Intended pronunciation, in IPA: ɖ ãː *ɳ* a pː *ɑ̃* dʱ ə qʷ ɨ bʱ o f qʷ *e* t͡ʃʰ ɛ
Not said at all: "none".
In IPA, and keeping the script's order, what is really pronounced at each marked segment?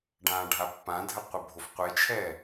ɖʱ, ã, e

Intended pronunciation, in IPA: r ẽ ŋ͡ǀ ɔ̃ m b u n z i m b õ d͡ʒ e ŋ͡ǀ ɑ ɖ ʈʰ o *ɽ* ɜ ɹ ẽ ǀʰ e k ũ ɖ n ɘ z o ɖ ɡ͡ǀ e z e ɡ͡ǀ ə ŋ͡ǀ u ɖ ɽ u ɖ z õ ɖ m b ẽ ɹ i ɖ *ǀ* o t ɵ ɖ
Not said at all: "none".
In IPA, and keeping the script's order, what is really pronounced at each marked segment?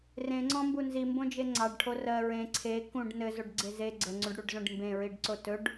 r, ǀ

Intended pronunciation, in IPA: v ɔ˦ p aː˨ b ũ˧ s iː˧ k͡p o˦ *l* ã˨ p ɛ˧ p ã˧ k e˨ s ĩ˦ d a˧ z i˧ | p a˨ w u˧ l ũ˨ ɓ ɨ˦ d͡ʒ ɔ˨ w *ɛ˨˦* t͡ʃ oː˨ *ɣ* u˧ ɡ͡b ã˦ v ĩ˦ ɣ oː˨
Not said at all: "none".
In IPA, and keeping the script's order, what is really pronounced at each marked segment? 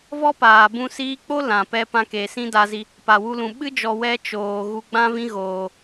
l, ɛ˧, ɣ

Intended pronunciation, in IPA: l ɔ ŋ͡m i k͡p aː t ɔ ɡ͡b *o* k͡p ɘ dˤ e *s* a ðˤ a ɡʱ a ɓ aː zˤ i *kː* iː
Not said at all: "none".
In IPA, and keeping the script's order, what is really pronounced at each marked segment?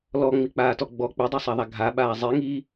ɔ, sˤ, ŋ

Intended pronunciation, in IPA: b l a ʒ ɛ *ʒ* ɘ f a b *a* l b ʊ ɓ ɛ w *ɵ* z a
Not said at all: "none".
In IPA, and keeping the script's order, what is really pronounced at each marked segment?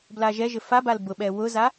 ʒ, a, ʊ

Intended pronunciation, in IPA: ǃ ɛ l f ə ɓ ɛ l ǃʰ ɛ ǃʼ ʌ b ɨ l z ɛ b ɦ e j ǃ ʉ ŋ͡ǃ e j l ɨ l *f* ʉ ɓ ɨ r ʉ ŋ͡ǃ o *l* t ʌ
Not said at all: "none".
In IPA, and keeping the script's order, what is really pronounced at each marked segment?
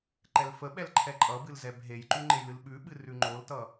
ɓ, l

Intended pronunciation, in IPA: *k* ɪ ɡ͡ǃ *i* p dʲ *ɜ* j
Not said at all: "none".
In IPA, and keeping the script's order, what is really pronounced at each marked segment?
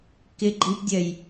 k, i, ɜ

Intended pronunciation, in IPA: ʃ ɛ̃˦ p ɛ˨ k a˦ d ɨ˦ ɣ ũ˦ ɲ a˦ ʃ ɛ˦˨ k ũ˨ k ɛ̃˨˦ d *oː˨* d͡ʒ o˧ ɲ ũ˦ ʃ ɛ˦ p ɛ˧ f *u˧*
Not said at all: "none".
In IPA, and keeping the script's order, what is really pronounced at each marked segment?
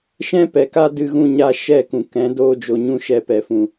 oː˦, ũ˧

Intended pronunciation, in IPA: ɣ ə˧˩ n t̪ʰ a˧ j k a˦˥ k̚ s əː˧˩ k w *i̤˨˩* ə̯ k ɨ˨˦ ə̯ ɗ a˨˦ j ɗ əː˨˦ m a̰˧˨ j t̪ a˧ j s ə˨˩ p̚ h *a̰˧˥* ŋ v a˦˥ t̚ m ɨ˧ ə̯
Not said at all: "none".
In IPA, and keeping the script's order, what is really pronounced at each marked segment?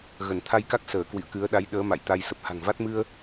ḭ˧˨, a̤˨˩

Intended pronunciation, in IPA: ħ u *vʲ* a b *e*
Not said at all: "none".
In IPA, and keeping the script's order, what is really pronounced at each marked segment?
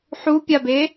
pʲ, e

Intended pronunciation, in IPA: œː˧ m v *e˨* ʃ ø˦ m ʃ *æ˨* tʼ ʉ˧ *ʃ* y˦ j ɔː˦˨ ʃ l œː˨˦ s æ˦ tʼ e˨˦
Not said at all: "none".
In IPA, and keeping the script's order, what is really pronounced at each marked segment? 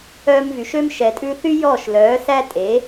y˨, ɛ˨, θ

